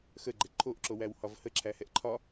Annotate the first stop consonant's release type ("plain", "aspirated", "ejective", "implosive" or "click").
click